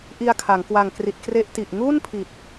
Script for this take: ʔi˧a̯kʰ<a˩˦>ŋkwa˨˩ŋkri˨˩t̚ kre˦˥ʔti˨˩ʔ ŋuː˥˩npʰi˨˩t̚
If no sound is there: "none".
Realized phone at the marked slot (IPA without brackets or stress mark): a˩˦